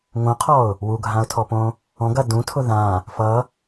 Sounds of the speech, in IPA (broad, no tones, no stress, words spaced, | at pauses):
ŋõqʰɔʊ̯ | wuɡʱãʊ̯tʰɔpõ | ɔ̃ɡɐ dũtʰʊ ðã | fʌ